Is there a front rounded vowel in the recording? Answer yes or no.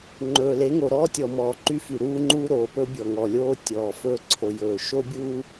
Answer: yes